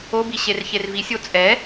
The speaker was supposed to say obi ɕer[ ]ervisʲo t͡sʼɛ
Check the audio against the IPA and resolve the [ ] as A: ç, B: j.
A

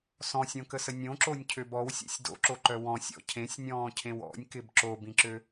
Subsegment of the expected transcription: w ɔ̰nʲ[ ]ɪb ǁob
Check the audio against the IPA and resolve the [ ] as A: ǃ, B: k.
B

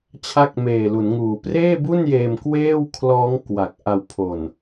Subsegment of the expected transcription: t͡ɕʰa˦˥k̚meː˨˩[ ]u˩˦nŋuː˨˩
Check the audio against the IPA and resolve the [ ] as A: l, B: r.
A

